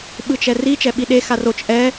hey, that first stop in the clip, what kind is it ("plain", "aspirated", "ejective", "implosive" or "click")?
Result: implosive